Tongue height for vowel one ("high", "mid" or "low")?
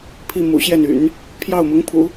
high